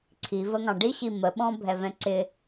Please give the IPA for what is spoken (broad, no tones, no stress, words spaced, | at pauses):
ǀʰivəŋɑ̃ ɖiɕi məɓɔ̃bʱɛvɛ̃ ǀɪ